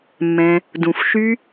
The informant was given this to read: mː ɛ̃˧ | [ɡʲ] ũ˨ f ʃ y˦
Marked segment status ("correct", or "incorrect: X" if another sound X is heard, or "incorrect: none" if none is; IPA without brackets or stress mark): incorrect: d